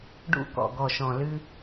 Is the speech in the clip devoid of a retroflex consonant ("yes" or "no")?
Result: no